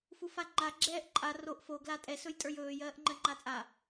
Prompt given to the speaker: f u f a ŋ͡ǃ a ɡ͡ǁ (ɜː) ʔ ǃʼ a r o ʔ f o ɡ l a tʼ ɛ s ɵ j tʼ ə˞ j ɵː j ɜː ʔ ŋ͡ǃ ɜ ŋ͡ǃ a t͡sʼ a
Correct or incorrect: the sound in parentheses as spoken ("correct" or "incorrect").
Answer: incorrect